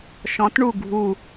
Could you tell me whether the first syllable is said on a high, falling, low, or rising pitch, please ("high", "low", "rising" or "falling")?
rising